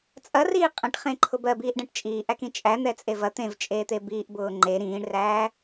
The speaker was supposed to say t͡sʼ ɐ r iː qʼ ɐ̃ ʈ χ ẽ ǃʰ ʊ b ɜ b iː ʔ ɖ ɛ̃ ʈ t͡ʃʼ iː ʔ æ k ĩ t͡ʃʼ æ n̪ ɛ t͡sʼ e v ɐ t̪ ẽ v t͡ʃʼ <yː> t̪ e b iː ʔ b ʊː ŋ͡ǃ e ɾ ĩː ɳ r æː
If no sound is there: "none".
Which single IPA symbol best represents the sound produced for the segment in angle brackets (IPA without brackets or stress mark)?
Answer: eː